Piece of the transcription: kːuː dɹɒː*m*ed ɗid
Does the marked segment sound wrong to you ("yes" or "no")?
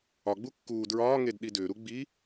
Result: yes